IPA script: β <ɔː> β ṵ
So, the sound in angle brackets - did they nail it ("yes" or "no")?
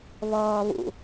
yes